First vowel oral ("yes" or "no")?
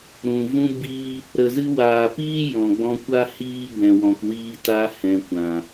no